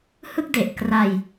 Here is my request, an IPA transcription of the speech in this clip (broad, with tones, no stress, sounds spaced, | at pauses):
h ɯ˥˩ k̚ d e˨˩ ʔ k r a˧ j